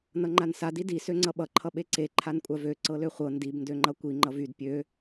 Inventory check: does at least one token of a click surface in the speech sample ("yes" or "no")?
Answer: yes